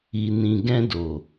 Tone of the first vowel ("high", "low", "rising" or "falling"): low